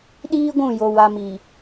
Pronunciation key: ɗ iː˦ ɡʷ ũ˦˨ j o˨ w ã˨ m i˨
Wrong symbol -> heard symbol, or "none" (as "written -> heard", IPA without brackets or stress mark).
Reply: ã˨ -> a˨